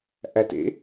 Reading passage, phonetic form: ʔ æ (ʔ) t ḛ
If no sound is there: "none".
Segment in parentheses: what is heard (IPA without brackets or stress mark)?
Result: none